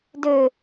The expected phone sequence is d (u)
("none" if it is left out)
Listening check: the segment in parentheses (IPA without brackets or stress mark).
ø